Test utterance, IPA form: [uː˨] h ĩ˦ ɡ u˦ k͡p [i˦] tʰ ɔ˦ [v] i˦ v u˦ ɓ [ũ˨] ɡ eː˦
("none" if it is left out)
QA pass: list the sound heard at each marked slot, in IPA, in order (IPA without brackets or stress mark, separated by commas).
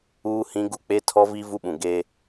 uː˦, e˦, v, ũ˨